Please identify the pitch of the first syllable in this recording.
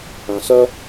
low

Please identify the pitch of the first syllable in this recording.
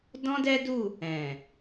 high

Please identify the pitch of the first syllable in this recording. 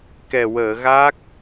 low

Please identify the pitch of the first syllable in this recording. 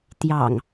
low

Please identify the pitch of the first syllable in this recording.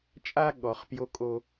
high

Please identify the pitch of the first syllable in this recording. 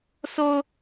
high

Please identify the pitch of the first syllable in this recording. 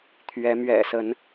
rising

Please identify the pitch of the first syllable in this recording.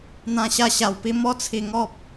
high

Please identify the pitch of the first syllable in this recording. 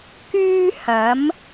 high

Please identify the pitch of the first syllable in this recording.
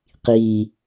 low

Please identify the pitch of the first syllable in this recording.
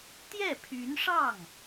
falling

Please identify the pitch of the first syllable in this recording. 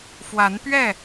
rising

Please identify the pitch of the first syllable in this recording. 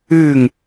falling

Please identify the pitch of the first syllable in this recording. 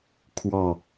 falling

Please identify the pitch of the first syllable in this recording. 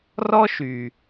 high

